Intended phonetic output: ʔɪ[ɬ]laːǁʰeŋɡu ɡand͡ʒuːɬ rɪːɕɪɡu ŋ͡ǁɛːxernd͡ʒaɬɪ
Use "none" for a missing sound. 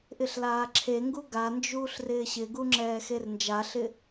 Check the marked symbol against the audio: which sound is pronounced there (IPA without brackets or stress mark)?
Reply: ɬ